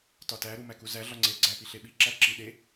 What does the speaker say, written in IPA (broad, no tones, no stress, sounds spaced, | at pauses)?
t ɒ t æ ɾ u m æ k u z æ ɮ ɒ ŋ͡ǀ e ɡ͡ǀ æ p i ɬ e ɓ i ǁ æ ǁ i ɗ e